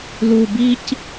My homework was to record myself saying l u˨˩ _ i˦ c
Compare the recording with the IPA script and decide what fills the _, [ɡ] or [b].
b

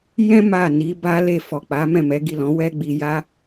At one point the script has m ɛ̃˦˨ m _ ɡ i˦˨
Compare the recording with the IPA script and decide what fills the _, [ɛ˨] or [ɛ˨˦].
ɛ˨˦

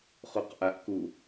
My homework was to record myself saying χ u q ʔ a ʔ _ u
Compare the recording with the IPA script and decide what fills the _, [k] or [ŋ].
k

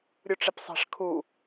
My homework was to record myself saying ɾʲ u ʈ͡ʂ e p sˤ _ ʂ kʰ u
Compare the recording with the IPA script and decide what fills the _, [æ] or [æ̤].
æ̤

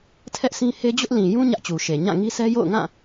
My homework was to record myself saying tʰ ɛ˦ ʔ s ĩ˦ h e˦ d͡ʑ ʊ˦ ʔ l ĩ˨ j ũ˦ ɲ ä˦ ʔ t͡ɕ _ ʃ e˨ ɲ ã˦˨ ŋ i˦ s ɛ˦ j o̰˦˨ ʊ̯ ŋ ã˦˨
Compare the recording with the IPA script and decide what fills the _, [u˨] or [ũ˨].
u˨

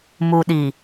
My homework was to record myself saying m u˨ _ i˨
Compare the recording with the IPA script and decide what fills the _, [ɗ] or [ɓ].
ɗ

